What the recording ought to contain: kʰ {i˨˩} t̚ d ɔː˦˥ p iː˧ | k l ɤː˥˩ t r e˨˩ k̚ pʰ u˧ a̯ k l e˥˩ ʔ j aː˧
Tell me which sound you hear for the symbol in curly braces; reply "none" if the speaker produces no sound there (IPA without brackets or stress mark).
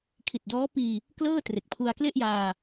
i˨˩